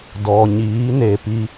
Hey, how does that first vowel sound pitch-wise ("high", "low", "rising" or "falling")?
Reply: low